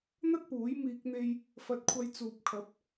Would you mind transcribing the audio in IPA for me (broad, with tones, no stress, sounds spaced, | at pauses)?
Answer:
n̪ ɐ˥ t̚ p uː˨˥ j m iː˧ k̚ n̪ e˧ j | f ɐ˧ t̚ kʷʰ ɐ˧ j t͡s uː˨ p̚ kʰ ɐ˨˥ p̚